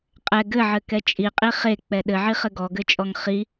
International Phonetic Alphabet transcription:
qʼɛ ɡɘʕɘkɛ t͡ʃʼiqʼi χek͡pɛ ɗɘʕiχɘ ɡɔɡɘt͡ʃʼɔŋ χi

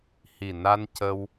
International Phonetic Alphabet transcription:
hi˨˩na˧ncə˧w

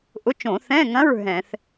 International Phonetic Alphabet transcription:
ʔʊ˧˥˧t͡ʃõ˧˩˧ θɛ̃˧˥˧ŋɐ̃˧˥˧ɹ ɦɛ̃˧˩˧θ

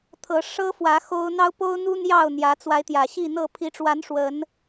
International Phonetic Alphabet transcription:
t̪ʰɤ˨˦ ʂɤ˦fwä˨˦ xo˦ʊ̯ n̪ɑ˦ʊ̯po˦ʊ̯n̪u˦ n̪jɑ˥˨ʊ̯n̪jä˨˦ t͡swa˨˦ɪ̯t̪jä˨˩ ɕi˥˨n̪ɤ˥˨ pʰi˨˦ʈ͡ʂwa˨˦n ʂwə˨˦n

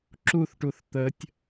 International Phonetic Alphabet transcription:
ǁuθʈuθ t̪ətʲ

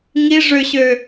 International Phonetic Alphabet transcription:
ŋi ʐøɕø

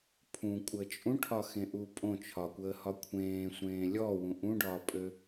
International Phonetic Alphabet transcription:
pʰũkʷʼəː t͡ʃʼũʈʰɒxẽʔu pʼõ t͡ʃʰɒkʷəːhɒ kʷʰẽːsʷẽː lʲɔwũ ʔũɖɒːpʼø

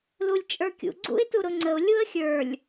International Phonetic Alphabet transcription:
lulʲt͡ʃʼə˞kʲṵ ɡ͡ǀṵɪ̯tuɾʊŋ͡ǀəʊ̯ lʲuə̯xʲə˞lʲ

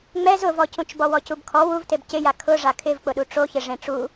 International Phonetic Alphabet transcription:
ŋ͡mɛz ʊvɔcũt͡ʃbɔ wɔcubkʰɔ wuvteb cɪja kʰʊ ʐakʰɪvk͡pʊɗu ʈ͡ʂoçɪ ʐẽʈ͡ʂu

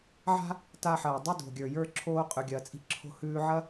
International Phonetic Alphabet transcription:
ʕa̤˥ | ta˧ ħɐː˩dˤi˧do̤˩ɡʲə˞˩ jə˞˧ ǁʰoː˧ qʼʉ˩ɡʲɐː˩ t͡sʼi̤˧ǁʰo̤˧hʉː˧ʕɐ˥

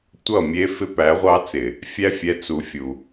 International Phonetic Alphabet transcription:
tʷʌ˦˨mʲe˦ fɪ˦pæ˨˦ʁʷɑ˦ t͡sɪ˨ | fʲæ˦fʲɛ˨˦ t͡su˨fʲu˨

